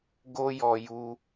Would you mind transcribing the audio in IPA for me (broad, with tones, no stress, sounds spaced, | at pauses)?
ɡ o˦ j ɔ˧ j u˧